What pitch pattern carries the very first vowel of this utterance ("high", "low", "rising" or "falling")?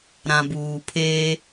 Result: low